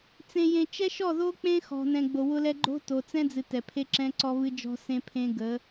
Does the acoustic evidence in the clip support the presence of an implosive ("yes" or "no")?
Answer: no